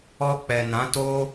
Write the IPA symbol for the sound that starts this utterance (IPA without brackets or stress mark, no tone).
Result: ɔ